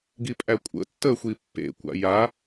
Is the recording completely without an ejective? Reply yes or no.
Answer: no